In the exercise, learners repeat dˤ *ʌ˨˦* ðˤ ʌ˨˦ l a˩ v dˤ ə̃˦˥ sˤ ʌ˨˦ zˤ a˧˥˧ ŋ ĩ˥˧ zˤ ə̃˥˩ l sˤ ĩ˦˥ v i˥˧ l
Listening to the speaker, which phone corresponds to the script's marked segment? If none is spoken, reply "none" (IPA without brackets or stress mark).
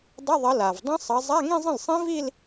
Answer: ʌ˧˥˧